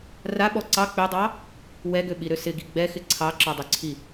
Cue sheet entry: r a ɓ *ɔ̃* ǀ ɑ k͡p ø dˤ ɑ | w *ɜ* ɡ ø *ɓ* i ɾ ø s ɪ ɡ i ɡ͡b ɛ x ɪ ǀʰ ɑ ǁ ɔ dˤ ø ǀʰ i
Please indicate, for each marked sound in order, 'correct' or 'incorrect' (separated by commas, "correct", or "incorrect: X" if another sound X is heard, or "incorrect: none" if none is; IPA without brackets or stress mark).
incorrect: ɔ, incorrect: ɛ, correct